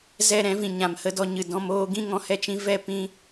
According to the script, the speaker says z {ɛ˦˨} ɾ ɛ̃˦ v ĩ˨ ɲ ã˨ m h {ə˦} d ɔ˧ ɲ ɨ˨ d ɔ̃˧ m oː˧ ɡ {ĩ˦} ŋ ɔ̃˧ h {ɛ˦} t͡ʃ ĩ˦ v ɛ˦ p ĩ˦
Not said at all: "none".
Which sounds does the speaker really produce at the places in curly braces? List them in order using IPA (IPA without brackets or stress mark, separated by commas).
ɛ˦˨, ə˧, ĩ˦, ɛ˦